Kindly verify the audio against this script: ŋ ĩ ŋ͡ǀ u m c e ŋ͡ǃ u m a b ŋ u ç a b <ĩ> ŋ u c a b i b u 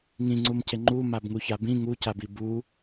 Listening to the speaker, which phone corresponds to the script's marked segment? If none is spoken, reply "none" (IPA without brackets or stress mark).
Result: ĩ